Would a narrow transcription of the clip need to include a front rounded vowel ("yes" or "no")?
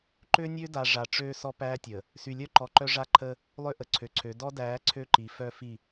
yes